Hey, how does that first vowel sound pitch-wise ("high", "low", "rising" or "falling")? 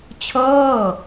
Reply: falling